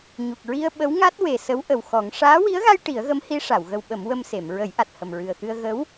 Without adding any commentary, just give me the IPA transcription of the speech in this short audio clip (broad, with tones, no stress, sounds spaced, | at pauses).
ɲ u˨˩ k̚ ɹ i˧ ə̯ ɓ ə˧˥ w ŋ a˦˥ t̚ w e˨˩ s ə˧˥ w ʔ ə˨˩ w x ɔ˨˩˦ ŋ ʂ aː˧˥ w i˧˥ ə̯ ɣ a˧ j ʈ i˨˩˦ ə̯ ɣ ə˧˥ m h i˧˥ ʂ a˨˩˨ w ɣ ə˧ w ɓ ə˨˩˦ m w ə˧ m s e˨˩˨ m ɹ ə˨˩˦ j ʔ a˨˩ t̚ h ə˨˩ m ɹ ɨ˨˩ ə̯ x ɨ˧ ə̯ ɣ ə˧˥ w